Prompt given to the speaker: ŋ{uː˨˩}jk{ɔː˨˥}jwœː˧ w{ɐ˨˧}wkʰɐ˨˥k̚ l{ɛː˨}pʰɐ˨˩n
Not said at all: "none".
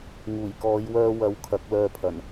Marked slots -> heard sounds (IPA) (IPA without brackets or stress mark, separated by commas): uː˨˩, ɔː˨˧, ɐ˨˧, œː˨